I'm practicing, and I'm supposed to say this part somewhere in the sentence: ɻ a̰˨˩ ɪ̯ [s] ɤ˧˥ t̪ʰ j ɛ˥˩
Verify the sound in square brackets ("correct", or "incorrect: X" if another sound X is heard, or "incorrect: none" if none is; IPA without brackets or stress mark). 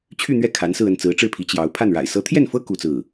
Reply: correct